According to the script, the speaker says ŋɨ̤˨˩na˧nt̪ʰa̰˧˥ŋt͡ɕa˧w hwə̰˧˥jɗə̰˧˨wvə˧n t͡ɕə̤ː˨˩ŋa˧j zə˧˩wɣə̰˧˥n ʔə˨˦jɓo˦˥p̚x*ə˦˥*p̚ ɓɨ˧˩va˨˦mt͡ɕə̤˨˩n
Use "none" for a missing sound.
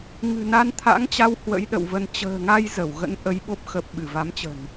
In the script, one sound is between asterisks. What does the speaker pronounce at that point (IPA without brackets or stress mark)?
ə˨˩